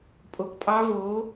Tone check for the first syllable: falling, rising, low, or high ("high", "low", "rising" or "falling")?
low